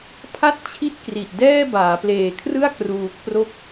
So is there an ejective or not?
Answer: no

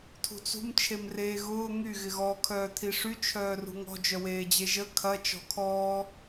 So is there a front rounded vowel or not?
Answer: yes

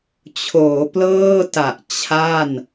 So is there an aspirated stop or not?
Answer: yes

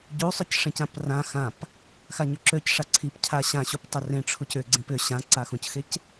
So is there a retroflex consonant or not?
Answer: yes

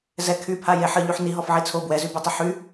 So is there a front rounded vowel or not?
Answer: yes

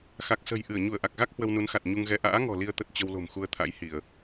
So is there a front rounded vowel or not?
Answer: no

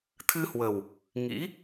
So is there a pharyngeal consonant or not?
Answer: no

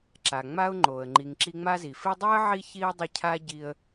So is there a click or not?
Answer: yes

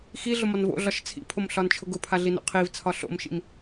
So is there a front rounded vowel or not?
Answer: no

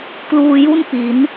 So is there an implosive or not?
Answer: no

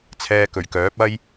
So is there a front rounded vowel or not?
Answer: yes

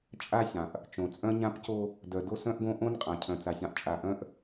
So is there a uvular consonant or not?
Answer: yes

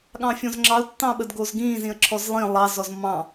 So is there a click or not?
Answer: yes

